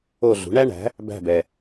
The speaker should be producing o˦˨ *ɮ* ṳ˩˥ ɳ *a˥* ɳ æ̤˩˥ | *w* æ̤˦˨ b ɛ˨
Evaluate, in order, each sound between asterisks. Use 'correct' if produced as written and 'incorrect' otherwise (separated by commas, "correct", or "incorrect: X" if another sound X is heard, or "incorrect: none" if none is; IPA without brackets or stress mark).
correct, incorrect: æ˥, incorrect: b